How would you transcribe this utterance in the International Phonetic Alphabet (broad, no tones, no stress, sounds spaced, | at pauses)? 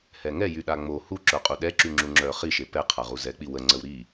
h ɛ ŋ ɛ j y ɗ a ŋ͡m o h u ǁ œ qʼ u ɗ ɛ ǁ y ŋ͡ǁ u ŋ͡ǁ œ χ i ʃ e p ɛ qʰ a ʁ u z ɛ k͡p i w ə ŋ͡ǀ ə w ɾ i